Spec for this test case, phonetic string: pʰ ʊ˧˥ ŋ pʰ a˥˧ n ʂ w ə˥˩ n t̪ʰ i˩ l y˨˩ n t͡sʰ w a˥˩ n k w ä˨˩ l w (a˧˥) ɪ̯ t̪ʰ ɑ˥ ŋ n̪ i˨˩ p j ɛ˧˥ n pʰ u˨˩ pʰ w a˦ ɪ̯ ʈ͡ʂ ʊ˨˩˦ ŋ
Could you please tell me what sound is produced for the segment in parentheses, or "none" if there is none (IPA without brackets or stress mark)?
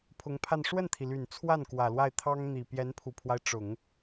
a˥˩